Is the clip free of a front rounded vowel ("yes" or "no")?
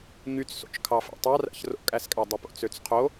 no